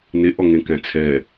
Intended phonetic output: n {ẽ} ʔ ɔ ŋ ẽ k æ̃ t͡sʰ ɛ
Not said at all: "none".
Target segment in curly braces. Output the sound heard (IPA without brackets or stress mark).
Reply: e